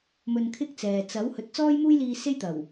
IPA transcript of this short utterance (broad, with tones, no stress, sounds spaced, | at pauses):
m ɵ˧ n kʰ ɪ˥ k̚ t͡s ɛː˨ t͡s ɐ˨˥ w h ɵ˨˥ t̚ t͡s ɔː˥ j m uː˥ j l iː˧ s e˥ j t̪ ɐ˨˩ w